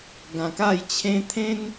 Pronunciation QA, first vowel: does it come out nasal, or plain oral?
nasal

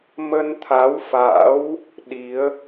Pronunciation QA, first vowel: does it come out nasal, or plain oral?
oral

